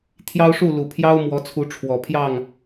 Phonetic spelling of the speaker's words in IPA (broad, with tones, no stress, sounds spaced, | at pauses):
t̪ʰ j ɑ˦ ʊ̯ ʂ u˥˨ l u˨˩ pʰ j ɑ˦ ʊ̯ m w ɔ˨˦ t͡sʰ u˨˦ ʈ͡ʂʰ w ɔ˨˩ pʰ j ɑ˥˨ ŋ